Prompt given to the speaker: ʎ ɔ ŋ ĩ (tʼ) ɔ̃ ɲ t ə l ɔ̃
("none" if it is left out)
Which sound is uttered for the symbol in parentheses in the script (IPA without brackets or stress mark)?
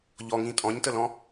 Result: tʼ